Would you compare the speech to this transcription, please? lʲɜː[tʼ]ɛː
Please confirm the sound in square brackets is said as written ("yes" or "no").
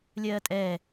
yes